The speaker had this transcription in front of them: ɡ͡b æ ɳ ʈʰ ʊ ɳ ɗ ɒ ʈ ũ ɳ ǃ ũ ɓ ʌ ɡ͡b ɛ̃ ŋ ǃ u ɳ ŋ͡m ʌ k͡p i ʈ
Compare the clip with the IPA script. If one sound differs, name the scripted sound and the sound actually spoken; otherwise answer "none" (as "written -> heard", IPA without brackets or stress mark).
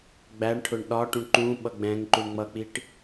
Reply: none